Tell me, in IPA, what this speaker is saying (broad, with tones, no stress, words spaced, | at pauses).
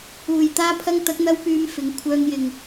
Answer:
uː˨˩j t̪aː˧pʰɐ˧ŋ t̪ɐ˨˥k̚n̪ɐ˧wpyː˨˧m fɪ˨˥ŋ kʷʰœː˧ŋjɪ˨ŋ